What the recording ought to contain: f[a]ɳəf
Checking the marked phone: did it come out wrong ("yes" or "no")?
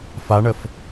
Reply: no